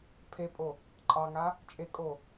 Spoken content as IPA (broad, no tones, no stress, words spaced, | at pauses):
pʰepʼo | ǃʼɑŋa | t͡ʃʼekʼo